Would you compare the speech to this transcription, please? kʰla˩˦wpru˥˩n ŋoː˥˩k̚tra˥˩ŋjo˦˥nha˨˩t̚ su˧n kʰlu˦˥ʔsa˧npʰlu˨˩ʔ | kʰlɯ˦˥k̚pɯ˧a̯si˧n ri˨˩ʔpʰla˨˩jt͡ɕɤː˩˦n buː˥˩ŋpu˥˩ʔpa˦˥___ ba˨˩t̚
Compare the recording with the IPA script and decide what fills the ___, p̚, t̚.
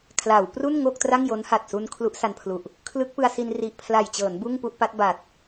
t̚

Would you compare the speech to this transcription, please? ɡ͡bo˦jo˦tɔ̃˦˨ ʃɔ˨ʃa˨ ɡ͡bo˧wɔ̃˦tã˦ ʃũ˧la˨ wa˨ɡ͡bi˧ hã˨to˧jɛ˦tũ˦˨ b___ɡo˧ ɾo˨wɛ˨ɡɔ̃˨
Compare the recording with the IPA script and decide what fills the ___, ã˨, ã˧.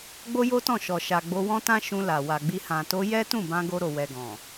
ã˧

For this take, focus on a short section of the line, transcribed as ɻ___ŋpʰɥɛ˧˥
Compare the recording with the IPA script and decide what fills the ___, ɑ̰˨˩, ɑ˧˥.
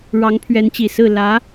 ɑ˧˥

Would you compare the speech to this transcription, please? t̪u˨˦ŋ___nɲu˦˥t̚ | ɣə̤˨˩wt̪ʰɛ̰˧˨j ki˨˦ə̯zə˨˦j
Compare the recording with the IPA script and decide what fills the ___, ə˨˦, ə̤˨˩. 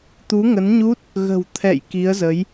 ə˨˦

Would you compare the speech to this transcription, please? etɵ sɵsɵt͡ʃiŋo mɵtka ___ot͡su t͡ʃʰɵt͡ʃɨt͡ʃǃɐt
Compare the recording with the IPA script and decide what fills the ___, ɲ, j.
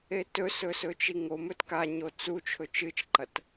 ɲ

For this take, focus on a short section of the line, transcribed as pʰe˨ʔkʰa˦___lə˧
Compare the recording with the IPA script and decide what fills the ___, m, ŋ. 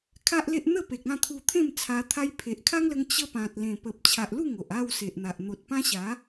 ŋ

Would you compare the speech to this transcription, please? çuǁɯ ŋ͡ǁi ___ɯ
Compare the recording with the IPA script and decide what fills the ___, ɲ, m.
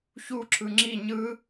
ɲ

